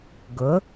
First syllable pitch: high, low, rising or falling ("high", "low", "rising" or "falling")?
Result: rising